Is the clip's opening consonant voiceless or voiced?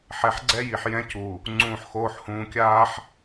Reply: voiceless